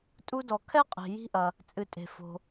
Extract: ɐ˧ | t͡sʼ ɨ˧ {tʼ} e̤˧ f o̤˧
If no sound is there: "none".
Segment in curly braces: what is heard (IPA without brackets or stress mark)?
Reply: tʼ